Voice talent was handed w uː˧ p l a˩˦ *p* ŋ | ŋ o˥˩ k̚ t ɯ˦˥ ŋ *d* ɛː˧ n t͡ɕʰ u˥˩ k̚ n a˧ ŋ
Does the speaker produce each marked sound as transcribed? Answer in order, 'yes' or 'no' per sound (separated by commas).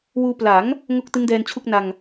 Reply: no, yes